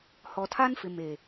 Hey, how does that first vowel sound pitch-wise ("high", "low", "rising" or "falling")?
low